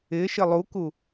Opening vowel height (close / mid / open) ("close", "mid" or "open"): close